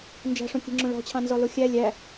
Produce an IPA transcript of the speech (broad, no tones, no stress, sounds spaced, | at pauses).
n d͡ʒ æ̤ ʂ õ kʲ e̤ ŋ͡ǁ õ ɭ ɔ̤ t͡ɕʰ ɑ̃ n z ɔ l o xʲ æ lʲ æ